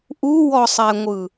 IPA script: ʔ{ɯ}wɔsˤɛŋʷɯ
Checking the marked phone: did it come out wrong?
yes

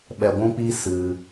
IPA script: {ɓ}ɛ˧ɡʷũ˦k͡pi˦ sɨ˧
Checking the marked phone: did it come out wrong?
no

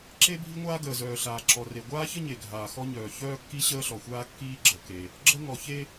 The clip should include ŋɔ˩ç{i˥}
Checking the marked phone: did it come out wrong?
yes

